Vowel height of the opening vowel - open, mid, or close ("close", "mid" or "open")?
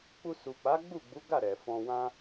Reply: close